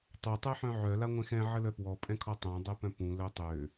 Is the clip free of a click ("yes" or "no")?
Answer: yes